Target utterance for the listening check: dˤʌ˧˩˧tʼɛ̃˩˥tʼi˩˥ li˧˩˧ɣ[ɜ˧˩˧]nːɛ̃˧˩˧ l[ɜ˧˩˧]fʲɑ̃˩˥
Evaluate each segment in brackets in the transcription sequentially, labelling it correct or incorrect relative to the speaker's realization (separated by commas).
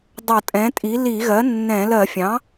incorrect, correct